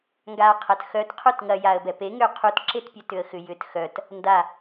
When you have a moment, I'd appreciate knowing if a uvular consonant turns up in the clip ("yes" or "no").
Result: yes